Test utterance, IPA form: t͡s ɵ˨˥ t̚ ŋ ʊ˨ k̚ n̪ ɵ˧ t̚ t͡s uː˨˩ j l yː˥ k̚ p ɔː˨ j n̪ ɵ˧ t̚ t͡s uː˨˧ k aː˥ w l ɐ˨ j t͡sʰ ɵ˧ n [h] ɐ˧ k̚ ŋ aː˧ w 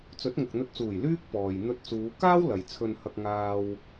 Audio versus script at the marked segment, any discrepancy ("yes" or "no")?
no